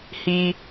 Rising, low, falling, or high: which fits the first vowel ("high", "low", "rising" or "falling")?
high